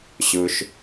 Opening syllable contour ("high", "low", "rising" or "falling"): low